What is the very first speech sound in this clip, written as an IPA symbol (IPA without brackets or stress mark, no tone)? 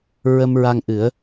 ɹ